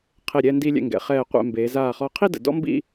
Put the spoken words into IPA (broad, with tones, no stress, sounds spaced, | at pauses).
qʰ e˧˩ ɾʲ ɛː˧ n d i˧ lʲ ɛ̰˧˩ ŋ ɡ ɛ̰˩˧ χ ɛː˧˩ qʷ ɛ̰˧˩ m b eː˩˧ z aː˧˩ χ ɔ˧˩ qʰ i˥˧ d ə̰˩˧ d ɔ̰˥ m b ḭ˥˧